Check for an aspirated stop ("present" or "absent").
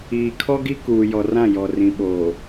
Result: present